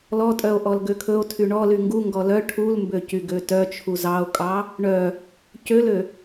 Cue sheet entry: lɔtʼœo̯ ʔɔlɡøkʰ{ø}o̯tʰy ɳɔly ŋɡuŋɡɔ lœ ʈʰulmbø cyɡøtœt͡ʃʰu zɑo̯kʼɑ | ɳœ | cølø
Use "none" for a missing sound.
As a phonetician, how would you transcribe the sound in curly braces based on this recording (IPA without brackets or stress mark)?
ɵ